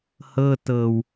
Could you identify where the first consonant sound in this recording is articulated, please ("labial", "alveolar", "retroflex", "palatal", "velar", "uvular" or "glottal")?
glottal